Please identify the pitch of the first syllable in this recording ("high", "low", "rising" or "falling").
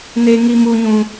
high